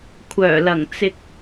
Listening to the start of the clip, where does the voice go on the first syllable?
low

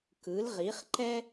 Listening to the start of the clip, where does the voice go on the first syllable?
rising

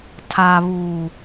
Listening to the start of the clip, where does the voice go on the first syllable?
low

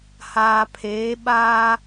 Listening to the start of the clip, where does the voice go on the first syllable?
low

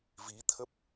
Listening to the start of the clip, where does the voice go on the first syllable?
rising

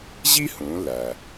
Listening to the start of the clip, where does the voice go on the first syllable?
high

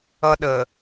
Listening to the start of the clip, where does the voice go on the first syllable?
high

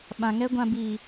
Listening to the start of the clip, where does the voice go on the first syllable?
low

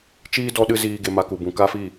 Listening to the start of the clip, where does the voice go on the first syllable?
high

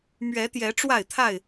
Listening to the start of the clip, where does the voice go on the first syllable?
rising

